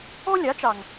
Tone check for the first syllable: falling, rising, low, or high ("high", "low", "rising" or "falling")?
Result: high